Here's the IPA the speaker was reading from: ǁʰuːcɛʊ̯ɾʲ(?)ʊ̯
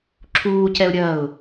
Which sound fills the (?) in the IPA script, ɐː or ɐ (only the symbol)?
ɐː